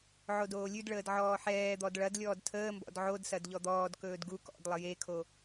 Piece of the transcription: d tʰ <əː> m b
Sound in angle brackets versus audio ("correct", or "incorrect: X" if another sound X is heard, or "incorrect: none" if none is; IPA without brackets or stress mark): correct